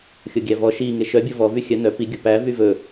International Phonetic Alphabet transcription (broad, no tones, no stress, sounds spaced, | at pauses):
xʲ o ɡʲ æ v ɔ ʃ i ŋ e ʃ œ bʲ o v ɔ v y xʲ œ n œ p i ɡʲ o p æ v y v ɵ